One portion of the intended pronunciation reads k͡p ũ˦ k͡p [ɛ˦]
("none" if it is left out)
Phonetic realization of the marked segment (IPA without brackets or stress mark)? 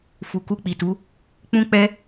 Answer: ɛ˦